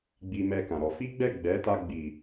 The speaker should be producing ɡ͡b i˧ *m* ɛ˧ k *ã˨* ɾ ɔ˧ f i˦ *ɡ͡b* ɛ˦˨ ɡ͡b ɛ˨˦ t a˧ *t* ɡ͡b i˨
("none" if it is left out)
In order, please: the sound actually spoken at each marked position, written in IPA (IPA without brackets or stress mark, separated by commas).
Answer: m, ã˨, ɡ͡b, none